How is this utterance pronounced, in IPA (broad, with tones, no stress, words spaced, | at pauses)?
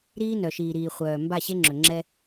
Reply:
ɾiː˦nœ˨ʃiː˨ɾiː˨ χʷœː˨ mba˦˨ɕe˦ŋ͡ǁɵ˨ ŋ͡ǁɛ˦